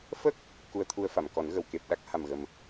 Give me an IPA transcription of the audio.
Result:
fə˦˥k̚ | ku˧ə̯t̪ʰu˧ə̯fa˨˩˨mkɔ˨˩˦n ɣə˨˩˨wke˨˩p̚ ɗa˦˥k̚ha˨˩mɣə˨˩m

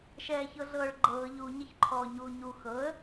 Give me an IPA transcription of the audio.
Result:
ʃɛːçɤɮɤːɭɡ͡ǃɤː ʎu ɲʌçǃʰɔːɲuːɲu xɤə̯

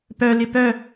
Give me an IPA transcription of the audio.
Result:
pœ lɪpœ

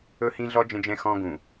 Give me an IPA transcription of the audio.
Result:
ɵ˦hĩ˦ɮɔ˦ d͡ʒə̃˦d͡ʒɛ̃˦ xɔ̃˦ɡũ˨

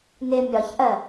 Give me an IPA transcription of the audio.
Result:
nɪ mʲɒçʔɜ

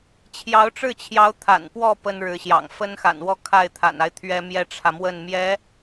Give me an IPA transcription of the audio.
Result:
t͡ɕʰjɑ˧˥ʊ̯ʈ͡ʂɻ̩˥˩t͡ɕʰjɑ˧˥ʊ̯ t̪ʰa̰˨˩npwɔ˥˩ pə˥nɻɻ̩˧˥ɕjɑ̰˨˩ŋ fə˥nxa̰˨˩nwɔ˥˧ kʰa˥˩ɪ̯t̪ʰa̰˨˩na˦ɪ̯ t̪ʰɥɛ˥mjɛ˥ʈ͡ʂʰä˨mwə˥˩n mjɛ˧˥

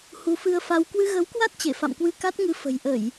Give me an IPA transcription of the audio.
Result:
hu˨˦fɨ˧ə̯fa˧w kwɨ˧ɣə˨˦wkwa˦˥t̚ t͡ɕe˧˩fa̰˧˨mkwɨ˧ ka˦˥t̚ŋɨ˧ fə̤˨˩jʔə˧˩˨j

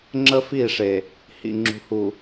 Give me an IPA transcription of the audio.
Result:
ŋ͡ǁə˦fi˦˨ʂe˨ | hḭ˨ŋ͡ǁṳ˨hu˨

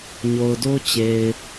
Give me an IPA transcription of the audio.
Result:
ɲo˨ʊ̯do˦t͡ɕe˨ɪ̯

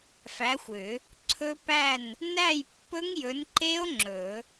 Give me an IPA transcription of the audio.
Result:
fæ˨˥xʷʏ˨˩˦ | ǀʰɵ˦˥pæ˥˨n | næ˥˨jpːɵ˦˥ŋjɵ˨˥nǃe˦˥o̯ ŋ͡ǁɵ˨˩˦

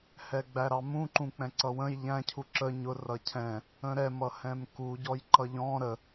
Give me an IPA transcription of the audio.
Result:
hɛɡ͡bæɾɑmũ ǃũk͡pɛ̃ǀʌwə̃j ʎæ̃ cʰuǁə ɲʊ rʌcʰɛ̃ | ə̃ɾɛ mʌhɛ̃mku ɟɔjǃʌʎɔ̃ ɾə

